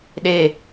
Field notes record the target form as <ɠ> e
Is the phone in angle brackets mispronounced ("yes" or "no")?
yes